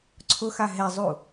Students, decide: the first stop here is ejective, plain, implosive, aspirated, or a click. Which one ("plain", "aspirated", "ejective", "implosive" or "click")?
click